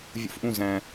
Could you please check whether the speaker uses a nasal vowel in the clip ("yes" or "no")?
yes